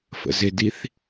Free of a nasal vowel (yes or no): yes